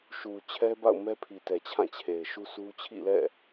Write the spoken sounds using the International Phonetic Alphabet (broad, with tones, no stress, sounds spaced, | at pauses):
ʃ u˨ t͡ɕʰ ɛ˦ b a̰˦˨ ʊ̯ m ɛ˦ pʰ i˨ t ɛ˨ t͡ɕʰ ã˦˨ t͡ɕʰ e˨ ɪ̯ ʃ u˦ s u˦ t͡ɕʰ ḭ˦˨ l ɛ̰˦˨